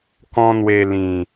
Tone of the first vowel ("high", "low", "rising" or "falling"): high